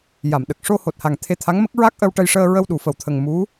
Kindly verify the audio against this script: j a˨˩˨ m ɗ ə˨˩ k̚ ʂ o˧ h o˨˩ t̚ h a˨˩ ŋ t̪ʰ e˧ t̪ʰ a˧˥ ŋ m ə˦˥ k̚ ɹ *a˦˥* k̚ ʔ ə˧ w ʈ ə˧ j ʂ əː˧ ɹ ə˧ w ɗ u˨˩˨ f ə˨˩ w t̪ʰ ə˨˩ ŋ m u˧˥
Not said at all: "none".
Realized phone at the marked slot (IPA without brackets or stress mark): a˦˥